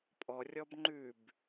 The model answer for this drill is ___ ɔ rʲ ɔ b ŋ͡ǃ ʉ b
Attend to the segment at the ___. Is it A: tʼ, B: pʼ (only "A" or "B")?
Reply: B